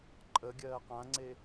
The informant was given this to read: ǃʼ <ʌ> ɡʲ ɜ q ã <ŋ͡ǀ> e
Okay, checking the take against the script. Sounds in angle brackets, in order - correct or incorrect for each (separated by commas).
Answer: incorrect, correct